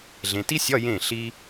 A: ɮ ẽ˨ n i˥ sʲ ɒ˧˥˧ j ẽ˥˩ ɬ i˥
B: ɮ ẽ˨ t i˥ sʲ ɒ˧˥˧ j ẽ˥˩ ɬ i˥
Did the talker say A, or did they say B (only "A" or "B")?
B